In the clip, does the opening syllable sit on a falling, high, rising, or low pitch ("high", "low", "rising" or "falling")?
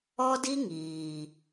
high